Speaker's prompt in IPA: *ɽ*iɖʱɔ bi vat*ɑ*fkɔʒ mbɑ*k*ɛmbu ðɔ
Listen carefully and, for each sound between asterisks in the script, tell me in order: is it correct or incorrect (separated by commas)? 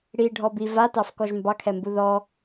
correct, correct, incorrect